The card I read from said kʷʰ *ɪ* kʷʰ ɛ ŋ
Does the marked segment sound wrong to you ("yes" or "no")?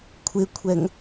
no